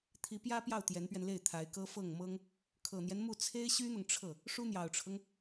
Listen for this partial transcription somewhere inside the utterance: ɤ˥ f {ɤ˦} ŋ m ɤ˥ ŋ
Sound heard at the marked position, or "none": ɤ˥˩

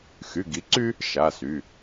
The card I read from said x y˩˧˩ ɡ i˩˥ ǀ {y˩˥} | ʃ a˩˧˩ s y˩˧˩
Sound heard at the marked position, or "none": y˦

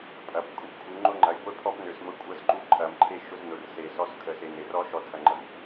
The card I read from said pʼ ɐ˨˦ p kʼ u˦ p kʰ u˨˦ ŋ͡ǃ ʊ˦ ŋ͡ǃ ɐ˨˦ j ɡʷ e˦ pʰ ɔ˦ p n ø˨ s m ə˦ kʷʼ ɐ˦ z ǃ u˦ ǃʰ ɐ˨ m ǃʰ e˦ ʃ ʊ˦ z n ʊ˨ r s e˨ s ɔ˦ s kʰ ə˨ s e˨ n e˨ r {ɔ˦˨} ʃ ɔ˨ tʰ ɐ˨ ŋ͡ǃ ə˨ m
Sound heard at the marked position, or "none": ɔ˦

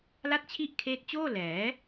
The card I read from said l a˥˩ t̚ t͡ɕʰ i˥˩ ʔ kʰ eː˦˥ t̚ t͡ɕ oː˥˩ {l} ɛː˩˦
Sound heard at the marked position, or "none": l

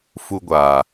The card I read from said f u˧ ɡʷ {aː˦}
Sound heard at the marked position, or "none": aː˨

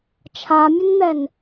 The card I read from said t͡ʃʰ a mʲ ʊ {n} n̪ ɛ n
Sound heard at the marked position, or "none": n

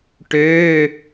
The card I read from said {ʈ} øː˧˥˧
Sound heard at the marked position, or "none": ʈ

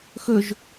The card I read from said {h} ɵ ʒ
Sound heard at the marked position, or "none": x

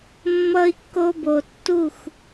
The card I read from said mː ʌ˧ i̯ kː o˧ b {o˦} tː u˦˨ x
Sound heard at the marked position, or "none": o˨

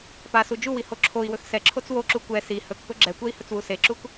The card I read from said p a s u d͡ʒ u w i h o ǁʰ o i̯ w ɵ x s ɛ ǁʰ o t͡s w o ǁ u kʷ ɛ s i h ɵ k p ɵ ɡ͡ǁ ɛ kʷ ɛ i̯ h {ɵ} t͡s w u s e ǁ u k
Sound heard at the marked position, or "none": ɵ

